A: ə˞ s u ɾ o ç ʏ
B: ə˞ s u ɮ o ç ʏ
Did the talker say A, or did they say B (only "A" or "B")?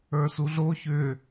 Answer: B